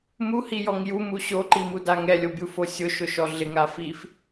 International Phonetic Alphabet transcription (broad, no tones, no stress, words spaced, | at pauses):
muhijɔŋ jumu ɕoǃimuda ŋɛlʲobʲufo sʲʊʃʊʃɔ ɮɪŋa fif